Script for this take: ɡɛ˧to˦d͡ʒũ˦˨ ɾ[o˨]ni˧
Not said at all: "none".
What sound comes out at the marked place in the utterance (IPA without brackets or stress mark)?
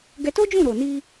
o˨